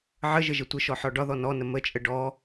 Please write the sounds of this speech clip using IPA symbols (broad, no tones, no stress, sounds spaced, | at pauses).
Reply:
ʕ ə ʒ ə ʒ ə tʷ ə ʃ ɔ ħ ɔ ɖ ɒ ð ɔ n ɔ n ə m ə t͡ʃʼ ə ɖ ɔ